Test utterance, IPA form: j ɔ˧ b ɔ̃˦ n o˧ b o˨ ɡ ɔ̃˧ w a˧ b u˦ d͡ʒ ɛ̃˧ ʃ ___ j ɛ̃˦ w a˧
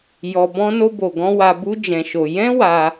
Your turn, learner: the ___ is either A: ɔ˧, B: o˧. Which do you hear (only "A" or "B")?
B